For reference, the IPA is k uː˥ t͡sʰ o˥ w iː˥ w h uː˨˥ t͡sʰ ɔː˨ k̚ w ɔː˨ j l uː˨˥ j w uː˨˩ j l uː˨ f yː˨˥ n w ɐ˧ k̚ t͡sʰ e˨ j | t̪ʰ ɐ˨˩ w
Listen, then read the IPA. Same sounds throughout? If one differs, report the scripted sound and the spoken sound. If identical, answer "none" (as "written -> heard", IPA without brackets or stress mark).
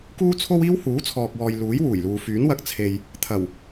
none